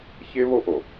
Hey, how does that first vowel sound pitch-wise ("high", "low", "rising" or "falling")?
high